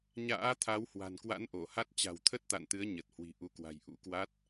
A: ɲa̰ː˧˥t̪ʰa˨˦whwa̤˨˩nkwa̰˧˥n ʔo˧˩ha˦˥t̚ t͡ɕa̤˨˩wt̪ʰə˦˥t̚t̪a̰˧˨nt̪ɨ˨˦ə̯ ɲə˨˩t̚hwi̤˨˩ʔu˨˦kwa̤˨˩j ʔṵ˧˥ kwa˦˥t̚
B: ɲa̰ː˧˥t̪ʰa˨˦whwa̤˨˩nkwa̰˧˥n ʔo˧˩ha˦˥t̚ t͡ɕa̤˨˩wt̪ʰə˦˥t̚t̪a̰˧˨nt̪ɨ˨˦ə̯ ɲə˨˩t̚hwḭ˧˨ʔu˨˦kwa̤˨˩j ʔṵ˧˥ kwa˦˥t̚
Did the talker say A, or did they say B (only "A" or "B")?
A